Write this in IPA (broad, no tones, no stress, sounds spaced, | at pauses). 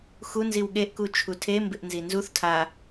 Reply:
x u n z i w ɠ e ʔ k u t͡ʃʰ u tʰ e m b ɪ ʔ n z i n z u θ tʰ a